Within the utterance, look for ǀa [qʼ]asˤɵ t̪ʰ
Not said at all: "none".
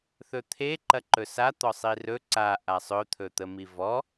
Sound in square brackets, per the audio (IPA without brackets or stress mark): ʔ